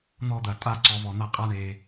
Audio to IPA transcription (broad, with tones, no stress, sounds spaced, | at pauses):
n̪ ɔ˥˧ d̪ ɐ˧˩ tʼ a˥˧ ǀ ɔ˧ v ɔ˩˧ n̪ a˧ qʼ a˥ ɳ e˩˧